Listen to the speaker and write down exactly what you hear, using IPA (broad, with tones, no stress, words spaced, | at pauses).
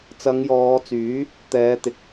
t͡sɐ˨˧ŋjɔː˨˧t͡syː˨˥ | t̪ɛː˨˧t̪ɪ˨˥k̚